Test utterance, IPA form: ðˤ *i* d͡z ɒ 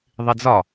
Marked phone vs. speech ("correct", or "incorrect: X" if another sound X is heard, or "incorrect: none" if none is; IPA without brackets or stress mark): correct